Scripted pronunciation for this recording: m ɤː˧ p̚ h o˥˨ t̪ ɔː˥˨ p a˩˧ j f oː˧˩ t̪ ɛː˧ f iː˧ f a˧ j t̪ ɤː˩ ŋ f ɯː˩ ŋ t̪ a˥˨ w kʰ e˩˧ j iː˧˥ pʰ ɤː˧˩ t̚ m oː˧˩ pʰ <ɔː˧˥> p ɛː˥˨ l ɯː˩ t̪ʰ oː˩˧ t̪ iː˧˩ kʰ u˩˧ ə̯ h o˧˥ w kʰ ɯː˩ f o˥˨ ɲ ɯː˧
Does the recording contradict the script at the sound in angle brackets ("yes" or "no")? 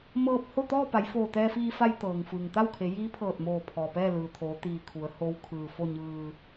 yes